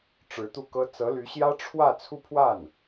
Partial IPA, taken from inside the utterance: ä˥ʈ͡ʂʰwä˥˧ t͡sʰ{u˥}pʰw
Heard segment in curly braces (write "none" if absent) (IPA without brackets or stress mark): u˥˧